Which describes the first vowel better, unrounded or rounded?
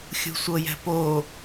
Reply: rounded